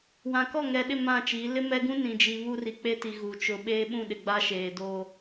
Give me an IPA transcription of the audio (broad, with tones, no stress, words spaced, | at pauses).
wã˨kɔ˦˨ ŋɛ˨ɗɪ˦˨ mã˦˨t͡ʃiː˨˦ lɪ˦mɛ˦ɡũ˦ nĩ˨d͡ʒi˨ βu˦ri˨k͡pe˦ti˨ ɣu˨ t͡ʃʊ˨ ɓeː˦ɓũ˦˨ɗɪ˨ ɡ͡ba˦ʃeː˨doː˦